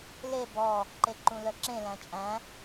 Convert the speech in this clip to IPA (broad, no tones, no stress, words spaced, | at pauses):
le bɔ | ǃeǃũlœǁẽ læ̃t͡ʃʼæ̃